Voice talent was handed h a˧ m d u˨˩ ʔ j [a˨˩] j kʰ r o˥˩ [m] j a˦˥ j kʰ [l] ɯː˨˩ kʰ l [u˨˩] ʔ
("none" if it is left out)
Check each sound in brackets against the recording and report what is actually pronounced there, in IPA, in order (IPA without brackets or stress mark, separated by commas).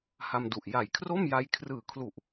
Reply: a˨˩, m, r, u˨˩